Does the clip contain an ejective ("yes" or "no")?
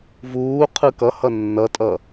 yes